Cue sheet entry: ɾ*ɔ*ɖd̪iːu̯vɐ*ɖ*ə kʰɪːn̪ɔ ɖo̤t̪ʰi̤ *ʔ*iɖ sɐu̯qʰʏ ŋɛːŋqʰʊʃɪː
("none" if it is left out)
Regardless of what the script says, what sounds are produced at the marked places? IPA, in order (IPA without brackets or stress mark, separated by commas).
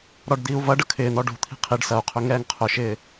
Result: ɔ, ɖ, qʰ